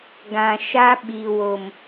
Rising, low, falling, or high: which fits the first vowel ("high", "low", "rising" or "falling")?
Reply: low